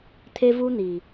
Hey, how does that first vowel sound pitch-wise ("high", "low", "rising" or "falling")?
high